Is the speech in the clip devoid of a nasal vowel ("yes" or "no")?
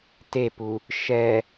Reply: yes